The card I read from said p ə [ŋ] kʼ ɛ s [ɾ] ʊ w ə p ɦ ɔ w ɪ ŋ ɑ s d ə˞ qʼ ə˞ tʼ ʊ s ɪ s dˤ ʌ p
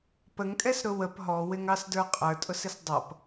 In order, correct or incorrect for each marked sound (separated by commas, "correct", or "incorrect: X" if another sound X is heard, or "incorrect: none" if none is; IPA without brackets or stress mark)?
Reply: correct, correct